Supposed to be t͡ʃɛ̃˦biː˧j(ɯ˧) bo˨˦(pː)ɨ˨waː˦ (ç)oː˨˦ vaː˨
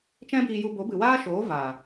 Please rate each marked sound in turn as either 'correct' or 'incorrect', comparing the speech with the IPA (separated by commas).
incorrect, incorrect, incorrect